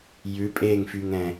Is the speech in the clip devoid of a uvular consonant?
yes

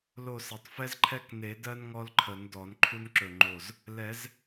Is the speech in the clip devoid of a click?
no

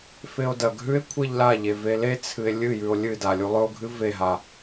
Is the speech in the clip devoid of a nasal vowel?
yes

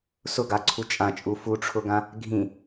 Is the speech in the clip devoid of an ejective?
no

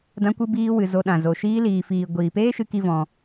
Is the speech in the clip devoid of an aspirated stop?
yes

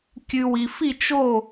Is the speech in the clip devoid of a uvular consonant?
yes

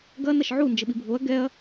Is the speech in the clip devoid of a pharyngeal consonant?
no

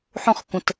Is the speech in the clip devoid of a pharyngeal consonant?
no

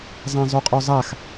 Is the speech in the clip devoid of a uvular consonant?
no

